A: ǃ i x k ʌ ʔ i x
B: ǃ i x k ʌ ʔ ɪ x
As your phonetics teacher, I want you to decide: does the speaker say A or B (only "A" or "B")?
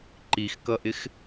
B